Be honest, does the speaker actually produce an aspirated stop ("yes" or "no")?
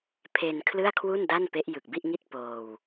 yes